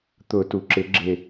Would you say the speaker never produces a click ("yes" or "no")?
no